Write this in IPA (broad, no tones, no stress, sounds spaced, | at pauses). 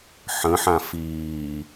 ħ ə̃ ħ ã f iː